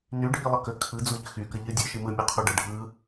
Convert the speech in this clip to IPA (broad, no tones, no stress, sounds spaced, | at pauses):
n y ɖʱ i lˠ ə k ə kʰ ɯ d͡z u ʎ ə x y k ə ʎ ɯ dʲ ɯ ʃ i m ɯ mʲ u qʰ u ɖ ə ɖʱ ɯ